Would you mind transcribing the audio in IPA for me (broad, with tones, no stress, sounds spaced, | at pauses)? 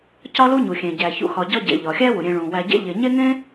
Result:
c ɒ˥ l u˥ ɲ u˩ xʲ ẽ˩ ɟ æ˩ ç ṵ˩ x ɒ˨ ɟ ɒ˦ ɟ ḛ˩ ʎ ɒ˩ xʲ æ˦ w u˩ ɾʲ ẽ˨ ɭ ũ˩ w æ˨ ɟ ḛ˦ ʎ e˨ ɲ e˥ ŋ ẽ˥